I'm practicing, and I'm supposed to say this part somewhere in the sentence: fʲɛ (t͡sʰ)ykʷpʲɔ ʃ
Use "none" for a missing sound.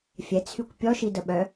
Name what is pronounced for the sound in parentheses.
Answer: t͡sʰ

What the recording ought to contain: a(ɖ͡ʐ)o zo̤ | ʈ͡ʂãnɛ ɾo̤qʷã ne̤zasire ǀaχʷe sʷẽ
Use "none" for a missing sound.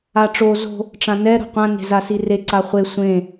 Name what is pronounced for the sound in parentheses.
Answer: ʈ͡ʂ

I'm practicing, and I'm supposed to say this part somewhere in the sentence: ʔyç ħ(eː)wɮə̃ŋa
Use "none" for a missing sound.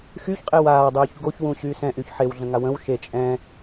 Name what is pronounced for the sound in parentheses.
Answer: e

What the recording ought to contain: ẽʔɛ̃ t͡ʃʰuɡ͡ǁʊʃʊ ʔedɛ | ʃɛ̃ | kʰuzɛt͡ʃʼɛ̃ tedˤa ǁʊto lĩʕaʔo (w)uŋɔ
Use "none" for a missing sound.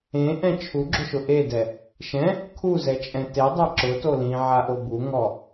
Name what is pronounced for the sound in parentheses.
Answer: b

